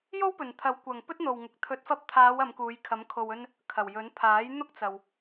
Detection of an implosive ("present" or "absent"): absent